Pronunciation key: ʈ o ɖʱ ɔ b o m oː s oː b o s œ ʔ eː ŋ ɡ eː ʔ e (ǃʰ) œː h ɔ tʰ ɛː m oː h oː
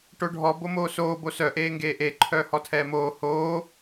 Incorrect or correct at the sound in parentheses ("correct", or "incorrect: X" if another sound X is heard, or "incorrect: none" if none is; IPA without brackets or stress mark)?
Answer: correct